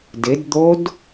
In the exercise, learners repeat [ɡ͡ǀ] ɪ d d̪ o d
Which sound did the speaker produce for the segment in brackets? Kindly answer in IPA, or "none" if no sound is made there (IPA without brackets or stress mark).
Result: d